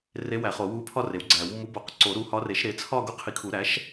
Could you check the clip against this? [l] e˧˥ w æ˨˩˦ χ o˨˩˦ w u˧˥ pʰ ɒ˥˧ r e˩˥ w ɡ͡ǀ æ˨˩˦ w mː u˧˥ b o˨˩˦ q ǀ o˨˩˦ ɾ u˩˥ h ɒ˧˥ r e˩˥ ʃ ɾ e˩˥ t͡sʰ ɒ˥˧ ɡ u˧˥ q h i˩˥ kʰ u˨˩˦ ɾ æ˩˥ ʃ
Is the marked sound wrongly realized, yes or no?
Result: yes